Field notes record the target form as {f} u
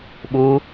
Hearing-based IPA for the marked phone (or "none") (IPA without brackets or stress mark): ɓ